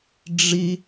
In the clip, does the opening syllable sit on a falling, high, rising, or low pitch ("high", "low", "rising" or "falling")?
high